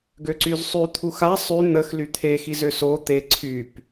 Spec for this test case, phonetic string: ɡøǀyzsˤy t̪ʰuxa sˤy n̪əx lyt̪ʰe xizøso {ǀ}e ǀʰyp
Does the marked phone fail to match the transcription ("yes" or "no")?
yes